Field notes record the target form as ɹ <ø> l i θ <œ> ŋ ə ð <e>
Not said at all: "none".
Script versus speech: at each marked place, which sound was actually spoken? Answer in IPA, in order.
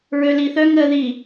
ø, œ, i

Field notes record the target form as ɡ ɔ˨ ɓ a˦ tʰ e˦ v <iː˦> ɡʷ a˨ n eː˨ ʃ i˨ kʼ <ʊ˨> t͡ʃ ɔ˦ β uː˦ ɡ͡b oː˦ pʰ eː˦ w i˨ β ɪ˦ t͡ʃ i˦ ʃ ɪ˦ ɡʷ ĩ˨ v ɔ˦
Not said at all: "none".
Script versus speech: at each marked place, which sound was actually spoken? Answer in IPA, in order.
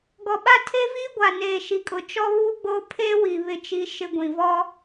iː˦, ʊ˨

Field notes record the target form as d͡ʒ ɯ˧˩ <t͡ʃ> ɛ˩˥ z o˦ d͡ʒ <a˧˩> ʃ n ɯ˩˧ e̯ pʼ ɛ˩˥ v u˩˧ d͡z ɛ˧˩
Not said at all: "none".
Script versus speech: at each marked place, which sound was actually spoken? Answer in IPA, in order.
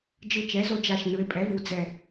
t͡ʃ, a˧˩

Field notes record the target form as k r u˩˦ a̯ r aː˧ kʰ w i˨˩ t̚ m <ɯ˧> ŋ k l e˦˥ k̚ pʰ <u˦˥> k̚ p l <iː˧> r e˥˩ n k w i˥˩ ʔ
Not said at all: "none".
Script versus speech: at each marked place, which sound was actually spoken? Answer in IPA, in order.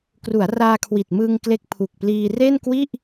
ɯ˧, u˨˩, iː˧

